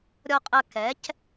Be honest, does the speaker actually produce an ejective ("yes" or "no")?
yes